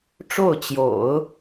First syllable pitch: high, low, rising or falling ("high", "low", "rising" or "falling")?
falling